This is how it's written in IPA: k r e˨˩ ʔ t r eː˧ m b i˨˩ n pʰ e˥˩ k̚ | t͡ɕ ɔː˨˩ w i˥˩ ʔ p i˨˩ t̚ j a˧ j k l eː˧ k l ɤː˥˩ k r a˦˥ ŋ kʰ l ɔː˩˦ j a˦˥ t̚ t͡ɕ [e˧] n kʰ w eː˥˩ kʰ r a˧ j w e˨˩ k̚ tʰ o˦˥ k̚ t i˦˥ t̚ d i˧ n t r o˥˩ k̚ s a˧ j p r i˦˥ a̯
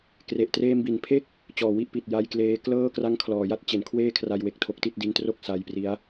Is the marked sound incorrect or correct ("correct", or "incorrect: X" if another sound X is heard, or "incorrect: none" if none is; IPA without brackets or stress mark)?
incorrect: e˨˩